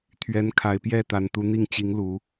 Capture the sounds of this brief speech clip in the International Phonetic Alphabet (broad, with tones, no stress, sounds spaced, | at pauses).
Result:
t̪ʰ ɥ ɛ˨˦ n kʰ a˨˩ ɪ̯ p j ɛ˥˨ t̪ a˨˩ n t̪ u˨˦ n̪ i˥˨ ŋ t͡ɕ i˨˦ ŋ l u˨˦